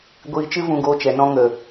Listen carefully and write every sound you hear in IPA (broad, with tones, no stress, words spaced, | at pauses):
ɡʷiː˧t͡ʃɨ˦ vũ˧ɡoː˧t͡ʃɛ˨nɔ̃˧ ŋə˨